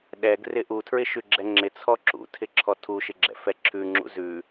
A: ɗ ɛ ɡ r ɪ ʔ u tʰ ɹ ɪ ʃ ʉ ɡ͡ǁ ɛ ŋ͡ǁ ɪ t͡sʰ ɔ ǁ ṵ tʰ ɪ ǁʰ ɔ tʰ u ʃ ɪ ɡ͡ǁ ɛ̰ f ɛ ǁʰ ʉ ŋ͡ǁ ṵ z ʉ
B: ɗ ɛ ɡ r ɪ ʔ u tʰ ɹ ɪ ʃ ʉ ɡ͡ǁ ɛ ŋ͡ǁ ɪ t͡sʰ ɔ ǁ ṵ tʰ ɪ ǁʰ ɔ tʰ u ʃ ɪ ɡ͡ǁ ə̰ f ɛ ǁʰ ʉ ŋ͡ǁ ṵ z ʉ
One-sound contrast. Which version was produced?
A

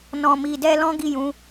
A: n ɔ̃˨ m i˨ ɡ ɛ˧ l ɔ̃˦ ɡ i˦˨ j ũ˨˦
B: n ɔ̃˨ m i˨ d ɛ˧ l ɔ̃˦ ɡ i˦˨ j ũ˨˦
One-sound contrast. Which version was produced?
B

